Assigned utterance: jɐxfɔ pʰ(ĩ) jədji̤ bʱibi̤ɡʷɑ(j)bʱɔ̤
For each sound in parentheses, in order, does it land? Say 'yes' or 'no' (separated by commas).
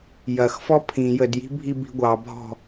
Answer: yes, no